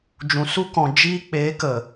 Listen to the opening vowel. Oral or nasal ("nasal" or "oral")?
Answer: nasal